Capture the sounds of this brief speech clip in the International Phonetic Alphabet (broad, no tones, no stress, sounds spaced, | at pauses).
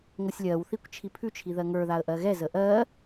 ŋʷ ʌ sʲ lʲ ɜ w θ i kʷ t͡ʃʰ i pʰ ʉ t͡ʃʰ i ð ɜ ŋ ə˞ ð a ə̯ ʔ ɜ ɣ ɛ z ə ʔ ɜ